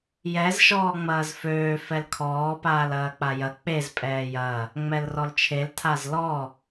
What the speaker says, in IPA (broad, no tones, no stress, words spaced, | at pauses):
jɛz ʃɔːŋ͡mɐːzføː fɛlkʰɔː paːlɐːk͡pajɐ k͡pez pʼɛːjɐ | ŋ͡mɛlrɔlt͡ʃʰel tʰazlɔ